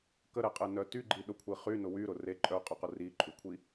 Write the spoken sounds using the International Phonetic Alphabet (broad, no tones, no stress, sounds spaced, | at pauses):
k ə ɾ ɛ qʼ e n œ t y ɡ͡ǃ i ɗ ʊ kʷʰ i χ y n ʊ w y ɾ ʊ r e ǃʼ œ qʼ ʊ q ʊ r i ǃʼ y kʷʰ i